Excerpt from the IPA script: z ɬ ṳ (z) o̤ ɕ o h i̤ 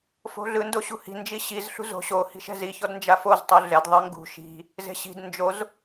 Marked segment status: correct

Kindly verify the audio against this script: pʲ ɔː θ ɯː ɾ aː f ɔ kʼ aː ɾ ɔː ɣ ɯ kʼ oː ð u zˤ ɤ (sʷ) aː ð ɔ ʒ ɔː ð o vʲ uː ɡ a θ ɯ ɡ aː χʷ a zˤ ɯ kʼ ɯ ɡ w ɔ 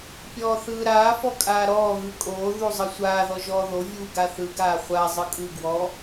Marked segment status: correct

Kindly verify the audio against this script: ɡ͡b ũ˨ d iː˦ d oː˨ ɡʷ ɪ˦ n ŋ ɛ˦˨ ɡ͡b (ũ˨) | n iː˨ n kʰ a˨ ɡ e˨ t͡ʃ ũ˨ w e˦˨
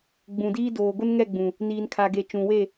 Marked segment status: correct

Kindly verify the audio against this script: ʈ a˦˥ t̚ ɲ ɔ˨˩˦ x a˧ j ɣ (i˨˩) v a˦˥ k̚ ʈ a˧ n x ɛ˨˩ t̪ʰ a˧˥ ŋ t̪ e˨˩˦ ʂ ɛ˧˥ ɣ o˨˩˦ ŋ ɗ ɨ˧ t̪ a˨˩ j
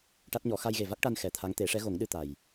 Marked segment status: incorrect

